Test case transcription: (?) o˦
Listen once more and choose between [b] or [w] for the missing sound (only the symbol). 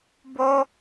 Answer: b